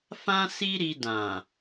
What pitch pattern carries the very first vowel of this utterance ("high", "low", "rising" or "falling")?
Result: high